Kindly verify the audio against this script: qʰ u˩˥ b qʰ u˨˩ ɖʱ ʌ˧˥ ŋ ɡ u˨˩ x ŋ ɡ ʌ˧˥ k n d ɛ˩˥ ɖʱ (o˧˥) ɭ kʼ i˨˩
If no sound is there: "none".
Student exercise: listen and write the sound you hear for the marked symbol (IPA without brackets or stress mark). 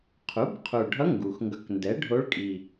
o˧˥